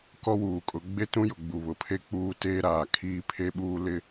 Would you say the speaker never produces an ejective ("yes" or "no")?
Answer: no